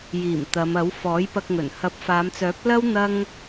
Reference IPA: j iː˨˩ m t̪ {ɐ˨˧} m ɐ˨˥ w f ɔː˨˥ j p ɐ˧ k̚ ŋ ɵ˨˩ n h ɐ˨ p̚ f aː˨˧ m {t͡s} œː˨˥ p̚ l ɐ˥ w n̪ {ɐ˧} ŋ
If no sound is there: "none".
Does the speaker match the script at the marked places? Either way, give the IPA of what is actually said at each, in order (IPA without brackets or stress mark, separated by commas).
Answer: ɐ˨˧, t͡s, ɐ˥